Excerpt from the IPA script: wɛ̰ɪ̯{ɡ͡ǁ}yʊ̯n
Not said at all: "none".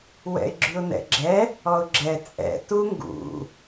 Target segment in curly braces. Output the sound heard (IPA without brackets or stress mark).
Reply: ɡ͡ǁ